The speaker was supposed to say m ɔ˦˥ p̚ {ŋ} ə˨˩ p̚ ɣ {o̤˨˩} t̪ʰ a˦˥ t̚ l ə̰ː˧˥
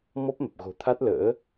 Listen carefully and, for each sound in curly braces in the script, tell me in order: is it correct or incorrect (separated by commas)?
incorrect, correct